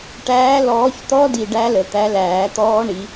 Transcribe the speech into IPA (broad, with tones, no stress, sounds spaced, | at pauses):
ʈ æː˨˦ l ɔː˨˦ ç t̪ ɔ˦˥ d i˨ ɖ æ˦˥ l ə˨ t̪ æ˨˦ l æː˨˩˦ t̪ ɔː˦˥ ɳ i˨˦